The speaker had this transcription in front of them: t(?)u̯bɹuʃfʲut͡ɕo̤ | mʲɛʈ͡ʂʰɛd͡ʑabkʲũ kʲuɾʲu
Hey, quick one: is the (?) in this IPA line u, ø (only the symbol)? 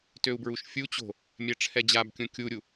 ø